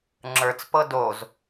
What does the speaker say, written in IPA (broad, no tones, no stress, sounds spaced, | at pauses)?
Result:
ŋ͡ǁ ə˞ t͡s p ɤ d o z